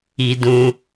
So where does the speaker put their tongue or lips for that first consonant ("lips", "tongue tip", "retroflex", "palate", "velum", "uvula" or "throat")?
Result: tongue tip